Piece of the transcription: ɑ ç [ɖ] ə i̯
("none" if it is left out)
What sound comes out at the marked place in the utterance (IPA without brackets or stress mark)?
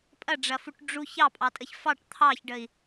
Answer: ɖ